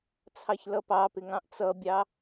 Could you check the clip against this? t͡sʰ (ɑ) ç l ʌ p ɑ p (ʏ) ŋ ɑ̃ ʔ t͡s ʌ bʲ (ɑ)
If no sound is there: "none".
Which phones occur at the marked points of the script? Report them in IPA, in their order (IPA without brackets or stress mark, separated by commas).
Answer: ɑ, ɪ, ɑ